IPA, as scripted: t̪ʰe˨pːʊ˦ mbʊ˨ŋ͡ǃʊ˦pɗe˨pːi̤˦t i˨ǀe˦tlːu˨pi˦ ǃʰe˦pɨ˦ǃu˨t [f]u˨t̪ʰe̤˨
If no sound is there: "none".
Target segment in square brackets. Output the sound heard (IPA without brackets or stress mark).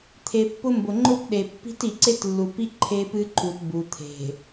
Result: b